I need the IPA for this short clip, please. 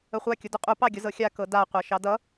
ə χʷ a kʲ ʊ d ʊ qʼ u p ɑ ɡʲ ʊ z ɤ xʲ a k ɤ d a qʷ a ʃ ɑ d ʌ

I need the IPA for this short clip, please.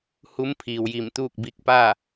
h u˧˥ m pʰ iː˩ w j i˧˩ m t̪ uː˥˨ k̚ b i˧ k̚ p a˥˨

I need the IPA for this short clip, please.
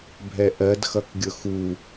bʱ ɛ ʔ ɜ d x ʌ k ɡʲ ʊ x u

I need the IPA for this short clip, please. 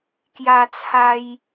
k j a˧ t͡sʰ a˧ j

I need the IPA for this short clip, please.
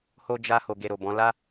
h o˧ d͡ʒ a˧ h o˨ ɡ e˨ ɾ o˨ b ɔ̃˨˦ l a˦

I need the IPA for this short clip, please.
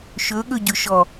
ʃ ɵ ɠ ɵ ɟ ɵ ʃ ɔ

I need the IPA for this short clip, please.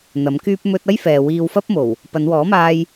n̪ ɐ˨˥ m k yː˥ p̚ m ɵ˥ t̚ ɐ˥ j f ɛː˨ w iː˧ w f ɐ˥ p̚ m o˨˩ w | p ɐ˨˧ n w ɔː˨˥ m aː˧ j

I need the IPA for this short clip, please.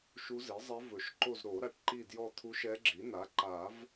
ʃ u˧˥ z i˩˥ zˤ ɛ˧˥ v ɵ˨˩˦ ʃ ǃ o˦˨ z ɾ o˨˩˦ ɾ a˩˥ ʈ ǃ i˦˨ d j ɔ˦˨ t̪ʰ u˧˥ ʃ ɛ˧˥ ɡ͡ǁ i˩˥ n a˩˥ ǃ a˨˩˦ v

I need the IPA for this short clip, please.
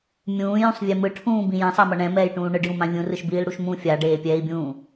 mʲ ũː j ũ sˤ vʲ e m ɯ ʈʰ ũː b ĩ j ã sˤ a m ʌ ɳ ɛ̃ m ɛː j ʈ ũː ɳ ɯ ɖ j ũ m ã vʲ ũ r ɯ ʃ b iː l ɽ u ʃ m ũ fʲ a ɖ eː pʲ ɛː i̯ bʲ ũː

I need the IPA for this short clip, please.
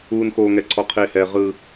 uː˦ n x oː˦ ŋ ɛ˦ ǀʰ ɔ˦ qʰ eː˦ h ɛː˦ ʁ ɯ˦

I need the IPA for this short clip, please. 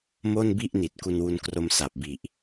m o˥˩ n b i˥˩ ʔ n i˨˩ t̚ k u˧ n w u˧ n k r o˧ m s a˨˩ p̚ b i˨˩ ʔ

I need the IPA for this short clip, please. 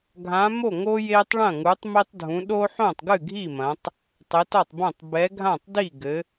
ɡʱ ã˨˦ m o˥˩ ŋ o˦ j e˦ tˤ ɭ ɐ̃˥˩ ŋ u˨˦ tˤ m i˦ tˤ dʱ ũ˨˦ ɗ o˦ ħ õ˥˩ tˤ ɡ ɨ˥˩ ɡʱ i˥˩ m ɐ̃˨˦ tˤ | tˤ e˨˦ t ɔ˥˩ tˤ b õ˥˩ tˤ b ɛ˨˦ ɡʱ ã˥˩ tˤ d i˥˩ ɡ ɘ˨˦

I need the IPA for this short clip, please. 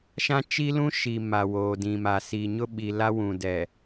ʃ ã˦ t͡ʃ i˦ l ũ˦ ʃ i˨ m a˨ w oː˨ d ĩ˨ m a˨ s i˨ ɲ ʊ˦ ɓ i˨ l a˦ w ũ˨ d ɛ˨

